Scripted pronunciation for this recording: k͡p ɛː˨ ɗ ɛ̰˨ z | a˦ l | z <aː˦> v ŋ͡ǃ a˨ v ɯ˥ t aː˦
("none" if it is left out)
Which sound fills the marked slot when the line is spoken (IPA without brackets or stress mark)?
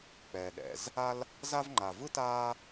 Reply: a˦